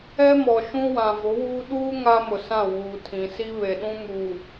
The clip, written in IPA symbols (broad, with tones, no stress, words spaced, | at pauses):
ɛ˦mɔ˨ʃũ˦wã˨ vʊ˨˦wuː˦ ɗuː˦ ŋa˦mʊ˨ sã˦˨wuː˨tʰĩ˨ si˦βe˨ɗũ˦ mu˨